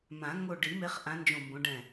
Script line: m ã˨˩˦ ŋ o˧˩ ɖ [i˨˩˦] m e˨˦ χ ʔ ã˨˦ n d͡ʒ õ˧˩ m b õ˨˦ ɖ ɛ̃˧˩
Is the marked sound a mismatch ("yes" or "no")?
no